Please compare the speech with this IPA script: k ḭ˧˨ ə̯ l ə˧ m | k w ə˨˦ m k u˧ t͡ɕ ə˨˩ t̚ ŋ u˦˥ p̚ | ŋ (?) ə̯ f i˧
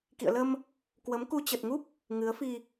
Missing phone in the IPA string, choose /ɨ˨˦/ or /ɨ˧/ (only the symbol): ɨ˨˦